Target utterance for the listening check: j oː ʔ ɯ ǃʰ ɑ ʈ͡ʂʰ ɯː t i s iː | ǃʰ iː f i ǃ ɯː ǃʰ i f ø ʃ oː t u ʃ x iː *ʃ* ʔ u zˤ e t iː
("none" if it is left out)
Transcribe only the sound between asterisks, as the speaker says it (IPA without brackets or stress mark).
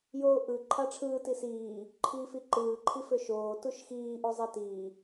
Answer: none